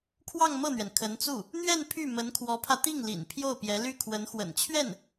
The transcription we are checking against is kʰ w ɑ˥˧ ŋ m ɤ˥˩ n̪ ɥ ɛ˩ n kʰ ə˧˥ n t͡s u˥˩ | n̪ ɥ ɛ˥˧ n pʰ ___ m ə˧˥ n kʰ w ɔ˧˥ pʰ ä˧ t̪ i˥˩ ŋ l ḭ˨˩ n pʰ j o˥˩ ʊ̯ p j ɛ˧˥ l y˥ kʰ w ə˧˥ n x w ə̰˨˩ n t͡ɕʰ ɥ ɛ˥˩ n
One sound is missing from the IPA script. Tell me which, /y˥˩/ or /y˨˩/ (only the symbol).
y˥˩